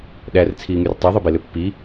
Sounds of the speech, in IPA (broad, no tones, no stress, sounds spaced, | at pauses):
ɗ æ r t͡sʰ iː ŋ y r tˤ ø ðˤ y b e l ø pː i